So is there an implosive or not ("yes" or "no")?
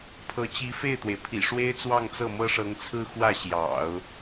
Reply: no